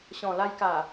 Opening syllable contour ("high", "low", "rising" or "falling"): low